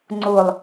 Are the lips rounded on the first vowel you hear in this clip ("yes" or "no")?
yes